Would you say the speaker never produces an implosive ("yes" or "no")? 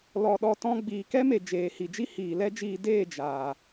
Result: no